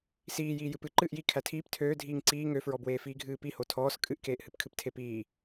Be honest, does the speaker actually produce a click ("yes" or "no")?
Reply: yes